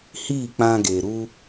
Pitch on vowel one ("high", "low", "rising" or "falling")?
falling